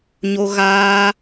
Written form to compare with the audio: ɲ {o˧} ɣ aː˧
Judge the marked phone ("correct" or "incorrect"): correct